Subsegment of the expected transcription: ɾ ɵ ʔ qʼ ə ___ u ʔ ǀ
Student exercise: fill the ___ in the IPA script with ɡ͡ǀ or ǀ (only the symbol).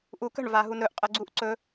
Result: ɡ͡ǀ